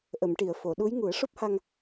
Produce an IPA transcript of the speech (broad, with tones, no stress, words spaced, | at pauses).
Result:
ʔə˨˩˨mʈi˨˩˨ə̯fo˨˩˨ɗu˧˥j ŋu˨˩˦ə̯ʂo˦˥p̚ha˧ŋ